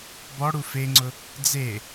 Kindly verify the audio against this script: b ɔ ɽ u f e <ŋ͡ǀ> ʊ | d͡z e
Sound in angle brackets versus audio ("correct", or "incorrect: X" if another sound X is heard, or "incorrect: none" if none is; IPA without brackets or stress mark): correct